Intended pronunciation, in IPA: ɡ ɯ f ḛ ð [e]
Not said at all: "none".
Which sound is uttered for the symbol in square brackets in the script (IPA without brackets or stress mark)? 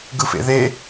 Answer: e